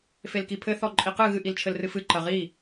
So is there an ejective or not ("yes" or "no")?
yes